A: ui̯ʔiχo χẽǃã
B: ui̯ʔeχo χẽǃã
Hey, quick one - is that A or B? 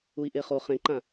B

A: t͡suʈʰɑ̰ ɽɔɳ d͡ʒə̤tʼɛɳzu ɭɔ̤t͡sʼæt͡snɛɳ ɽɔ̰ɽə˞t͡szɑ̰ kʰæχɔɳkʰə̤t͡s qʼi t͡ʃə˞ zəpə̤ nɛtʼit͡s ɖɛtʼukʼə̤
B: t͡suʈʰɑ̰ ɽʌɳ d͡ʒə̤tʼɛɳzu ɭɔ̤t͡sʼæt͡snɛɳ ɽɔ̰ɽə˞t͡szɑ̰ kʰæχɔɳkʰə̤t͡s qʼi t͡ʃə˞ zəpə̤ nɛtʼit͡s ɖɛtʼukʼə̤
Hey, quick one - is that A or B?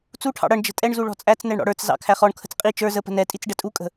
B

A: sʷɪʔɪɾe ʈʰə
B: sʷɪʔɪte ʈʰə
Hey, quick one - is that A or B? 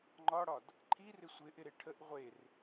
A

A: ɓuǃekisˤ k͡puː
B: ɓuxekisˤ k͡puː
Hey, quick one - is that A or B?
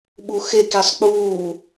B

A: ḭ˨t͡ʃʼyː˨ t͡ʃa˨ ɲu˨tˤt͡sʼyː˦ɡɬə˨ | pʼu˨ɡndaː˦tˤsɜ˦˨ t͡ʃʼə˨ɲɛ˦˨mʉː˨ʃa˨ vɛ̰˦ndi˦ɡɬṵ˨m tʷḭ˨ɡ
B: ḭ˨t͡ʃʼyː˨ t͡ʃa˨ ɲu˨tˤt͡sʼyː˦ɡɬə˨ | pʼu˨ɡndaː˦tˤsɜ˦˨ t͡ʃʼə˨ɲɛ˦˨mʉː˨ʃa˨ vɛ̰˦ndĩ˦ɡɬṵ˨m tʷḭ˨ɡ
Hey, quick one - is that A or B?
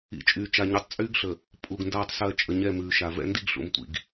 A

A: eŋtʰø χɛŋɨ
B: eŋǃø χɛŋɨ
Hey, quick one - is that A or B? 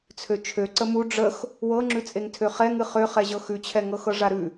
A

